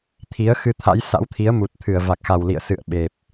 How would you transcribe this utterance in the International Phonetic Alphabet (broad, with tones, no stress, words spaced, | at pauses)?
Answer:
t̪ʰi˨˦ə̯ xɨ˧t̪ʰa̰˧˥j sa̰˧˥wt̪ʰi˨˦ə̯ mu˨˩t̚t̪ʰɨ˧˩ə̯va˨˩k̚xa˨˩w lḭ˧˨ə̯sɨ̰˧˨ə̯ ɓe˨˩p̚